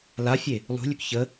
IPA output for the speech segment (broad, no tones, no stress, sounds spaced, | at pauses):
l a fʲ e | lˠ ṳ lʲ ø k ç ə